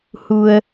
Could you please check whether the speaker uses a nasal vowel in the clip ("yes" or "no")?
no